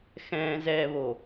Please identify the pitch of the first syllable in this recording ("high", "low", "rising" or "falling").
low